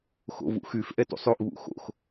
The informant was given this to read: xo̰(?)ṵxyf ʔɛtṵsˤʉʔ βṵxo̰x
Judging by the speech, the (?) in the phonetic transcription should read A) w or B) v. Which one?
B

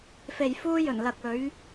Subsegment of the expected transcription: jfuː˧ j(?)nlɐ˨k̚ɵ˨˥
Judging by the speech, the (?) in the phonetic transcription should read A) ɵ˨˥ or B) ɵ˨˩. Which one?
B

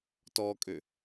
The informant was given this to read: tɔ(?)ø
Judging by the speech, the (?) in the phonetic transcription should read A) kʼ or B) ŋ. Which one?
A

